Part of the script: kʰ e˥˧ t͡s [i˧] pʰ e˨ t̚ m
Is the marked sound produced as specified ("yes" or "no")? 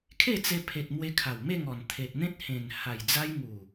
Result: no